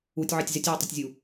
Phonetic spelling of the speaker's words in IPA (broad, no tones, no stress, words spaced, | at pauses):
utʲʕɛtʲ zɪtʲwutˤʊtʲzʲu